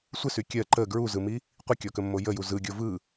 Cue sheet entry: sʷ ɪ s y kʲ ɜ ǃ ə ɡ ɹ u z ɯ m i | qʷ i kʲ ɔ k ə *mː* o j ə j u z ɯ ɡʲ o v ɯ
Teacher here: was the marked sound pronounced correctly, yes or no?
yes